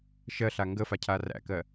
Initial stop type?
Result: plain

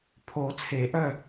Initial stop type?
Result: aspirated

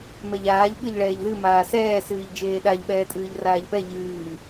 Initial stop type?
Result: implosive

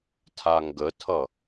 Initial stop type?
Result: aspirated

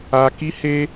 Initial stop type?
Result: plain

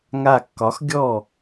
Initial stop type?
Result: plain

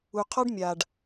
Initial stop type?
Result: aspirated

